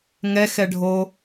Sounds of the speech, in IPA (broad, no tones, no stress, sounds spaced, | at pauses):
ŋ ɛ x ɛ ɖʱ o